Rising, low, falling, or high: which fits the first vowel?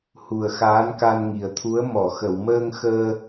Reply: low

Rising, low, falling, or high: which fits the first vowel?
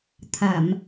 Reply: low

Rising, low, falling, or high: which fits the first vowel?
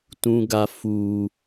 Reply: low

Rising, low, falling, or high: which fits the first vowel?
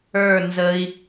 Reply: falling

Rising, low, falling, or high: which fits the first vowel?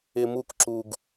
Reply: high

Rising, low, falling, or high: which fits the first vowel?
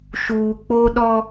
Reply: low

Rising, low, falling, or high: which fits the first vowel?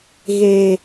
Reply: low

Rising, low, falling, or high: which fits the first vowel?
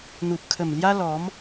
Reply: low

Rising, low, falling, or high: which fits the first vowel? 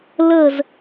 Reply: falling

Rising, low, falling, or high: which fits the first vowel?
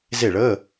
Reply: falling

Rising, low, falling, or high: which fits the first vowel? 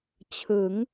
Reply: rising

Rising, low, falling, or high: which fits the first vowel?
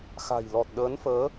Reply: low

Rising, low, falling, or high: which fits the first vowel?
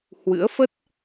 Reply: rising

